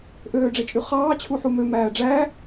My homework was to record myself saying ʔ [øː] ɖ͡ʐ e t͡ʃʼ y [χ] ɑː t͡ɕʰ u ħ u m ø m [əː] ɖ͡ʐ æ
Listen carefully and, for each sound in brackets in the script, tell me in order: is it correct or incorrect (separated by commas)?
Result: correct, correct, incorrect